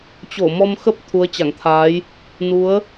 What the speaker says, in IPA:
t͡ɕ o˧˩ m ɔ˧ m x ə˦˥ p̚ t̪ʰ u˨˦ ə̯ t͡ɕ a˧˩ ŋ t̪ʰ aː˨˦ j | n u˨˦ ə̯

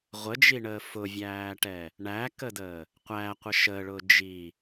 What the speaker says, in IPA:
ʁʷ ə d͡ʒ i ɳ əː f ʊ vʲ æː ʈ ɛ | ɳ æ k ə d əː | qʷ æ qʷ ə ʃ ə ɭ ʊː d͡ʒ i

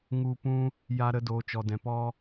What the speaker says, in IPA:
ŋ u˧ p ũ˦ | j a˧ ɾ ə˧ d oː˨ t͡ʃ ɔ˨ d ɛ̃˨ p ɔ˦

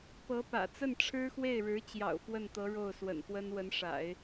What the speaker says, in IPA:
p ɤ˧˥ p ä̰˨˩ t͡s ə˥˩ n ʈ͡ʂʰ ɻ̩˥ x w e˥˩ ɪ̯ ɻ ɻ̩˧˥ t͡ɕ j ɑ̰˨˩ ʊ̯ f w ə˥˩ n t̪ ɤ˧˥ ɻ o˥˩ ʊ̯ s w ə̰˨˩ n x w ə˥ n w ə˧˥ n ʂ a̰˨˩˦ ɪ̯

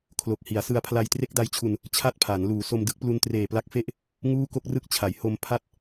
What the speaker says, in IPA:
kʰ l o˨˩ k̚ h i˩˦ a̯ s ɯ˧ a̯ pʰ l a˧ j t r e˦˥ k̚ d a˧ j t͡ɕʰ u˨˩ n | t͡ɕʰ a˥˩ t̚ pʰ a˩˦ n l uː˩˦ s o˧ m d ɯ˥˩ k̚ p l u˧ n t r eː˨˩ p l a˦˥ k̚ f e˥˩ ʔ | ŋ uː˥˩ k o˥˩ k̚ r ɯ˥˩ k̚ t͡ɕʰ a˩˦ j h o˧ m pʰ a˦˥ t̚

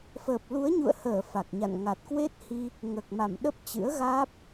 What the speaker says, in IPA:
f əː˨˩ p̚ l u˨˦ ə̯ ɲ ṵ˧˨ ə̯ h əː˧˩ f a˨˩ k̚ ɲ a̰˧˨ n ŋ a˨˩ t̚ k w e˦˥ t̚ h i˧ | ŋ əː˨˩ k̚ m a˧˩ m ɗ ə˦˥ p̚ t͡ɕ ɨ̰˧˥ ə̯ ɣ aː˦˥ p̚

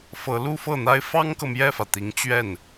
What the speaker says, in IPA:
f ɤ˧˥ l u˥ f ɤ˥˩ n̪ a˥ ɪ̯ f ɑ˥ ŋ k ɤ˨ m j ɛ˥˩ f ä˩ t̪ i˧˥ ŋ t͡ɕ ɥ ɛ˥˩ n

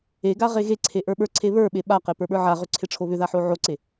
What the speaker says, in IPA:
e ɡ a ʁ e ɣ e ǀʰ e ʔ ə˞ ɓ ə˞ ǀʰ e β ə˞ ɓ e ɓ a q e p ə˞ ɓ ə˞ ʕ a ʁ ʏ ǀʰ e ʈ͡ʂʰ o β ʏ ð a ħ o ʕ o ǀ e

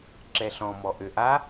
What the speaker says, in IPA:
ǁ ɛ ɬ ɔ̃ m ɔ ʔ ø ʔ a

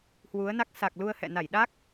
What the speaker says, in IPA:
h w u˨˦ ə̯ n a˦˥ k̚ s a˨˩ k̚ l u˧ ə̯ h ɛ̰˧˨ n a˧˩ j ɗ a˦˥ k̚

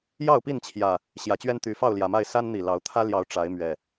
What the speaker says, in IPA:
j ɑ˥˨ ʊ̯ p i˥˨ n t͡ɕʰ j ä˨˩ | ɕ j ä˨˩ t͡ɕ ɥ ɛ˦ n t̪ y˨˦ f ɑ˥˨ ʊ̯ l j ä˨˩ m a˥˨ ɪ̯ s a˦ n n̪ i˨˩ l ɑ˨˦ ʊ̯ t̪ʰ ä˦ l j ɑ˨˦ ʊ̯ ʈ͡ʂ a˨˦ ɪ̯ m ɥ ɛ˨˩

